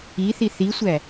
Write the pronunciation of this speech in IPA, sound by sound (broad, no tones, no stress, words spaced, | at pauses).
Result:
iθi θisʷæ